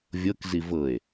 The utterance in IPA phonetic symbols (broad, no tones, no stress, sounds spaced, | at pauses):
vʲ ɤ k z i v ɤ e̯